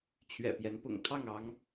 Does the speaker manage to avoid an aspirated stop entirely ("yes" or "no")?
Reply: no